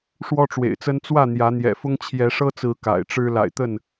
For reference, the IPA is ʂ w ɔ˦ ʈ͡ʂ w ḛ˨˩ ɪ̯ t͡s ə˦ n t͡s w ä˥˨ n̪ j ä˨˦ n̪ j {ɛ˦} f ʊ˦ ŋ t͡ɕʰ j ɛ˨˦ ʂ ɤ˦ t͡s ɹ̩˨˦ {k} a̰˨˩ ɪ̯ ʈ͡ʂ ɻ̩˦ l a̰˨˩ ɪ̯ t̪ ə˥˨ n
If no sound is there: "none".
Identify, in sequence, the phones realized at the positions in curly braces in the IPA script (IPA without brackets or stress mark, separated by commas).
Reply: ɛ̰˨˩, k